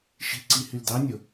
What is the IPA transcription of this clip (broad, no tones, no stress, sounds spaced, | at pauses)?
ʃ i̤ ǀ i h y l d ɑ nʲ o